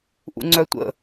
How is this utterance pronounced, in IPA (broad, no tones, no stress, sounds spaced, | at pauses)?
ʔ ṵ ŋ͡ǀ œ tʷ ə̰